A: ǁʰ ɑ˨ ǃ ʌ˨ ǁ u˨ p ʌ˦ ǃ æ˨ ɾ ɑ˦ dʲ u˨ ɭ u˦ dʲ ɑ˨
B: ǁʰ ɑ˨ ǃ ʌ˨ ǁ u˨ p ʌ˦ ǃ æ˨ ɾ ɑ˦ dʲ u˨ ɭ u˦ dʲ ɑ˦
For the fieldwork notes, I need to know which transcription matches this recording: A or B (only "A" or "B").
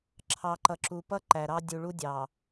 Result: A